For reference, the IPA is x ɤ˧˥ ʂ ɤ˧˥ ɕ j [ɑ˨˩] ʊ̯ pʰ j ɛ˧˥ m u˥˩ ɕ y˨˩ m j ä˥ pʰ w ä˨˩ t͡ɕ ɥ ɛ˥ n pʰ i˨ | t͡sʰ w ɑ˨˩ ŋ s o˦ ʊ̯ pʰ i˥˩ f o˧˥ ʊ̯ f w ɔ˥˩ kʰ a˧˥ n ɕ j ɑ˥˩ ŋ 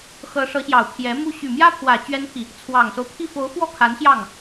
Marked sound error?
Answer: no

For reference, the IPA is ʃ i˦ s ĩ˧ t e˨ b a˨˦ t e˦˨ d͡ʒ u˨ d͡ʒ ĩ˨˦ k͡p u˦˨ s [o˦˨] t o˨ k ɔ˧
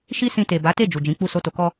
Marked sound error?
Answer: yes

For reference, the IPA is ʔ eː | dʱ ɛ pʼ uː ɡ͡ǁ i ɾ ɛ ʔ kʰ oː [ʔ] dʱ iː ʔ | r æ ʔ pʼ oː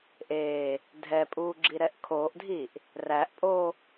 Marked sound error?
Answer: no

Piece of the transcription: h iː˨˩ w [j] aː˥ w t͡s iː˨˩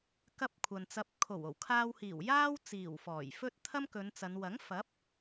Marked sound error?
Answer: no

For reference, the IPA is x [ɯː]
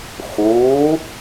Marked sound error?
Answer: yes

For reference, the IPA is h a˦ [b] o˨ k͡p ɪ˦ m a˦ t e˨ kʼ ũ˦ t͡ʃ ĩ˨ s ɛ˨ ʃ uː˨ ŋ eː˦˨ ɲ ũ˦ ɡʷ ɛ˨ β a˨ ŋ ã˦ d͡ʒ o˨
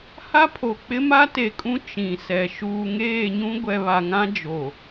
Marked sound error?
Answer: yes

